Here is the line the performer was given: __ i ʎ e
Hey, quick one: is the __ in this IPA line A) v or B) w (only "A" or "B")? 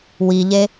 B